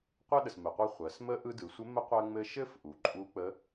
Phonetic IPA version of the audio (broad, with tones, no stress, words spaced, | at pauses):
qʷɜ˥ɗə˩smɘ˩qʷɯ˧ χʷɜ˩˧s mə˧˥ʔɯ˧ dɯ˩˧sʷɘ˧˥ mə˧˥qʷɜ˧ŋ͡mɘ˧ ʃɘ˥f ʔu˩ǃʼu˧˥k͡pə˧˥